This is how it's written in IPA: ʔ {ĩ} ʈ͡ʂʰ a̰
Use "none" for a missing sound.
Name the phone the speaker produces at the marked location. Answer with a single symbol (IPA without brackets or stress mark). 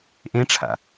ẽ